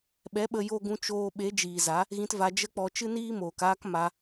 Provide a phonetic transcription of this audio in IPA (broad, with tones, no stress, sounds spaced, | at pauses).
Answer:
ɓ ɛ˨˦ ɓ ə˧ j o˧ ɡ ũ˧ t͡ʃ oː˧ ɓ e˨˦ d͡ʒ iː˨ z a˨˦ | ɣ ĩ˧ t v a˧ d͡ʒ ə˦ k͡p ɔ˧ t͡ʃ ɨ˦ n iː˦ m oː˨ k aː˦ k m a˦